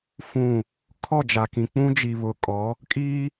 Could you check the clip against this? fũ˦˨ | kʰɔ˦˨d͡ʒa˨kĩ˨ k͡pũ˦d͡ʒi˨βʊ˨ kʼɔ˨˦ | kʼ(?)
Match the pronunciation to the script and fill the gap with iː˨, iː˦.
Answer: iː˦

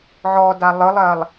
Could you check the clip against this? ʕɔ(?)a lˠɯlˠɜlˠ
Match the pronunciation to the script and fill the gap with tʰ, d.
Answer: d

